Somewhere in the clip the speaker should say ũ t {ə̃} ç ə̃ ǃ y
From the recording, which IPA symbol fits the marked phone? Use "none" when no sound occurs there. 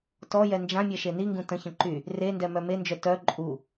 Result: ə̃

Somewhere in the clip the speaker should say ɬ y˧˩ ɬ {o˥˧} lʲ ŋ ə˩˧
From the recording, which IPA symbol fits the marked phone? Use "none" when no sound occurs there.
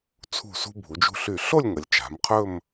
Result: o˥˧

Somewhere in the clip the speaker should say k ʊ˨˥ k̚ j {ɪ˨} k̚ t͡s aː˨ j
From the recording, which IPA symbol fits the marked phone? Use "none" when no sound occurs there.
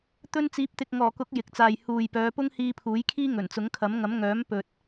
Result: ɪ˨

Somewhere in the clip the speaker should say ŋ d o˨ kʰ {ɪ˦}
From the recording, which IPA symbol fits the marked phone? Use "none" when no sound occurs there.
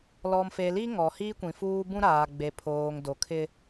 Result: ɪ˦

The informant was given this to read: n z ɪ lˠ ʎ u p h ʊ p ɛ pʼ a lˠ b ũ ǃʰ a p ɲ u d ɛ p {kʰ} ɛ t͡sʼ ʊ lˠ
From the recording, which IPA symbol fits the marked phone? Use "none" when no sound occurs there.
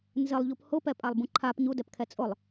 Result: kʰ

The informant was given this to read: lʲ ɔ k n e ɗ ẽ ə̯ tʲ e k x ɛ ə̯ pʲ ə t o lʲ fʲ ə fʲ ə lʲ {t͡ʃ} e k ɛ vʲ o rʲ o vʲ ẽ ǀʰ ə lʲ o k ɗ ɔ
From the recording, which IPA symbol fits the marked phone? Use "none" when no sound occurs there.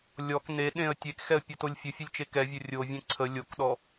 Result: t͡ʃ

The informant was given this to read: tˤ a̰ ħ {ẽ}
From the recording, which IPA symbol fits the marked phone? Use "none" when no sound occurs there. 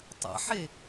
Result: e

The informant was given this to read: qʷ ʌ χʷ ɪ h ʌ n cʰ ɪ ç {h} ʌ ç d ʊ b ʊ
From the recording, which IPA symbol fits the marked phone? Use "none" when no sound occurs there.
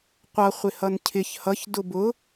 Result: h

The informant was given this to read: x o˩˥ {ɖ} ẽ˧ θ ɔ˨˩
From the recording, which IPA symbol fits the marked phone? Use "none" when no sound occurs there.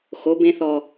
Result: b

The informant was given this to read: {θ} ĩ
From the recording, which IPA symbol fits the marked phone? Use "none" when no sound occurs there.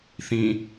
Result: θ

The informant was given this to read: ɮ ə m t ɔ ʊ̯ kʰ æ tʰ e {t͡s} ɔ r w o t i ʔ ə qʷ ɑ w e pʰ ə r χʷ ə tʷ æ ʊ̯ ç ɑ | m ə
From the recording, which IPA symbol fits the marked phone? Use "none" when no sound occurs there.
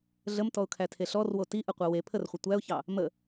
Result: ɬ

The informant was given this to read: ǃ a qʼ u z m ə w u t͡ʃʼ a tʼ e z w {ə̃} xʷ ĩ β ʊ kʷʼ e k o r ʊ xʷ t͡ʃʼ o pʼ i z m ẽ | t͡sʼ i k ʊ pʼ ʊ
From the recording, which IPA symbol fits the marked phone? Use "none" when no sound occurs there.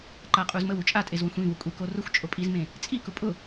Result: ə̃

